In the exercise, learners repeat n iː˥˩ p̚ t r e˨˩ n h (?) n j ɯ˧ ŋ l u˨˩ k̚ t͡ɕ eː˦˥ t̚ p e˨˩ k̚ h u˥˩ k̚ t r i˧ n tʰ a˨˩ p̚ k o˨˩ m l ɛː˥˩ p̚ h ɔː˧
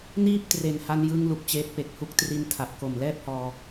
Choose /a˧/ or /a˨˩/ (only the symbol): a˧